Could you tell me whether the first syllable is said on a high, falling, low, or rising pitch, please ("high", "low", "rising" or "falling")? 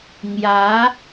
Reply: rising